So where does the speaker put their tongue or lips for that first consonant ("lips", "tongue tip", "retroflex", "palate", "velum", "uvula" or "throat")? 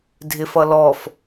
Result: tongue tip